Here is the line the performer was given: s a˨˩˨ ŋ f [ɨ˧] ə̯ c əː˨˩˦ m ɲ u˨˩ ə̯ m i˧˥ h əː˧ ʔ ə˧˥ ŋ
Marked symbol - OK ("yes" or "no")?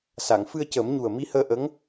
yes